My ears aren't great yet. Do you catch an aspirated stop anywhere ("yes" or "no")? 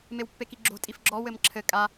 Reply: yes